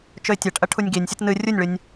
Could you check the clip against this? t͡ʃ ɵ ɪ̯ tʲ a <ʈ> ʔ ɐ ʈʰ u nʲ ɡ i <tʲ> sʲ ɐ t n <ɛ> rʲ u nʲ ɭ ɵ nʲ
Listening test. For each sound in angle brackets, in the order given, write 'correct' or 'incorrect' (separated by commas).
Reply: correct, incorrect, incorrect